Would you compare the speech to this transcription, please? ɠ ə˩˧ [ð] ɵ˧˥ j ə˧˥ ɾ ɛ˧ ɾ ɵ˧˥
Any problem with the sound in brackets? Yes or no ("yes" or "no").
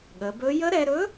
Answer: yes